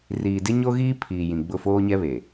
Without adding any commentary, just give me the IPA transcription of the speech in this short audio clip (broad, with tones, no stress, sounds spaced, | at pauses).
r iː˨ d ɪ˦ ɲ o˦ ɣ iː˦ pʰ iː˨ j ĩ˨ ɡ͡b ʊ˦˨ f oː˦ ɲ ɛ˦ β e˨